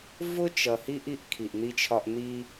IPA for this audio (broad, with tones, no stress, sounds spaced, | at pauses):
v ʊ˦ t͡ʃ ʌ˨ h i˦ ʔ i˦ ʔ kʰ i˨ ʔ n̪ i˦ t͡ʃʰ ɒ˦ ʔ n̪ i˦